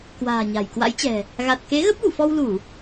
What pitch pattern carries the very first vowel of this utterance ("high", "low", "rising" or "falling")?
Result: low